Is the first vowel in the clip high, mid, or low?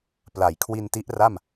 low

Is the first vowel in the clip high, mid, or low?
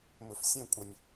mid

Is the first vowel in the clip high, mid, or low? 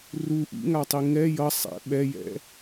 high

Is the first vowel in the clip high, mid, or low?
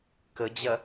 mid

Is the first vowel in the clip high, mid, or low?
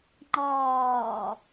low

